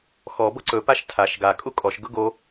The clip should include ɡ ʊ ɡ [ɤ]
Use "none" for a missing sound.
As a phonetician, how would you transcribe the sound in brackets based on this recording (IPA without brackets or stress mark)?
o